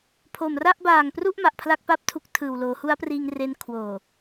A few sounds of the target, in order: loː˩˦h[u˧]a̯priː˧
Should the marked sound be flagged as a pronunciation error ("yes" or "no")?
yes